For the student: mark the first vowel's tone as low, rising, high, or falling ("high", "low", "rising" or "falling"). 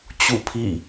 falling